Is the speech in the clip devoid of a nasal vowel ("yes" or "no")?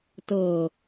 yes